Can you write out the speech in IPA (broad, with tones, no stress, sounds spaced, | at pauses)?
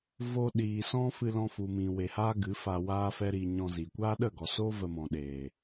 v oː˧ ɗ iː˨ s ɔ̃˦ f ɨ˧ l ɔ̃˧ f u˨ m ĩ˨ w e˨ h aː˦ ɡ ɨ˨˦ f a˧ w aː˦ f ɛ˦ ɾ i˧ ɲ ɔ̃˧ z i˨ kʷ aː˦ ɗ ə˦˨ ɡ ɔ˨ s oː˦ v ə˧ m ɔ̃˨ ɗ eː˨